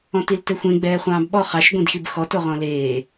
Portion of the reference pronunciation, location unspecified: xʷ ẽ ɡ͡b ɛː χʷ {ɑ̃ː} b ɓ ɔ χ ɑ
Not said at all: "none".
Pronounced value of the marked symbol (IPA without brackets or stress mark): ɑ̃ː